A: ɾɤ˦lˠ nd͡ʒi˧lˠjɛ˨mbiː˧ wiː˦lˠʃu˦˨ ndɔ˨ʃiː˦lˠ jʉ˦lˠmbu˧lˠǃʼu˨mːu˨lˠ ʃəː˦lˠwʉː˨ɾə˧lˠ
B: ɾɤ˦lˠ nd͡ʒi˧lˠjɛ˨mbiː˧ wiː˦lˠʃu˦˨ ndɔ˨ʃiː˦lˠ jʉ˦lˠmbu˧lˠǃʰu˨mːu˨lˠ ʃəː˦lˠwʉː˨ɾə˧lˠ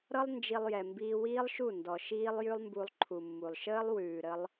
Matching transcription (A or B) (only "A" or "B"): B